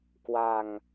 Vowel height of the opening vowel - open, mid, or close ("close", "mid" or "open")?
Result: open